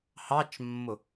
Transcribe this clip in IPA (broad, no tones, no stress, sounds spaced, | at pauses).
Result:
h ɑ t͡ʃ mː ʊ